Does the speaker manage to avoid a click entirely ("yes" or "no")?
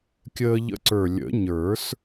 no